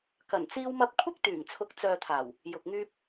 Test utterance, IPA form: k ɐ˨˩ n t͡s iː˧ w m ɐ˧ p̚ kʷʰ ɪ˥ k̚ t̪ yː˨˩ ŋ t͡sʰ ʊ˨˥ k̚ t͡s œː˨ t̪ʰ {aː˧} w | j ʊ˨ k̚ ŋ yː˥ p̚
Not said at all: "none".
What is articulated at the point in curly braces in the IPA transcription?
aː˨˩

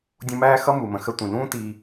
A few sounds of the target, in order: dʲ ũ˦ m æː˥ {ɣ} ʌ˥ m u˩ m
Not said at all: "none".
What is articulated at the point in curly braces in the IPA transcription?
x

